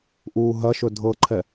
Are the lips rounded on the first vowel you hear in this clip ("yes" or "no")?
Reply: yes